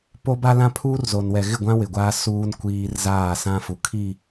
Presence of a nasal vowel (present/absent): present